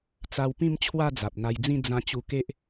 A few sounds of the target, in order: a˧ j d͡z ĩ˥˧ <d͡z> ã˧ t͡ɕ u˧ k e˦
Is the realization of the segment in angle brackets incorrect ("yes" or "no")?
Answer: no